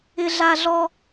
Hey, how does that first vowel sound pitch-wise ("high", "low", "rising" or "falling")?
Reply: high